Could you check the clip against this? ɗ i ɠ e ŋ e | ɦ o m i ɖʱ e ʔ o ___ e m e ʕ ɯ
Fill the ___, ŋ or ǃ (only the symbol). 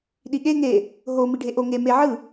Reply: ŋ